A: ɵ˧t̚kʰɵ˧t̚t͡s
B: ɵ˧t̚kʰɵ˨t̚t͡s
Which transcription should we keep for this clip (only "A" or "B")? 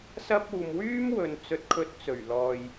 A